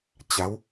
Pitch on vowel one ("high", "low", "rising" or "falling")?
rising